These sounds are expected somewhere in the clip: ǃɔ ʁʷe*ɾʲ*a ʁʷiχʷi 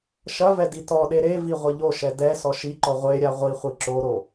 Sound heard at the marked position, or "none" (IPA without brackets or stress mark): ɾʲ